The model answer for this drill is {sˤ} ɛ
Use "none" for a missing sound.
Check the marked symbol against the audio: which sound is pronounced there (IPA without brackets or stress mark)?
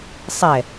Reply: sˤ